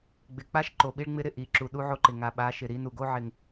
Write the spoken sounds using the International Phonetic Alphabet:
ɡ͡b ɪ˨ k͡p a˦ ʃ ǃ o˨ ɓ i˦ ɭ ŋ͡m ɪ˦ ɾ ɪ˦˨ ʔ i˨ ǁ u˨ ɗ u˦ ʕ o˦ ǃ ɪ˨ ŋ a˨ ɓ a˨˦ ʃ ɪ˨ ɾ i˨˦ n u˨ ɡ o˦ ʕ ɪ˨ ŋ

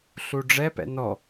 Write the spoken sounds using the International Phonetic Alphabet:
ɬ u ɖ͡ʐ ɛ p ɛ̰ n ɔ

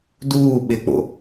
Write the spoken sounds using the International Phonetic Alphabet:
d uː ɓ ɪ k͡p o̰

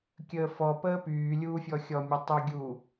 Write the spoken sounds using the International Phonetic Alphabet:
kʲ əː f ɔ p əː p yː lʲ uː fʲ ɔ xʲ ɔ mʲ ɔ tˤ y ɡʲ u

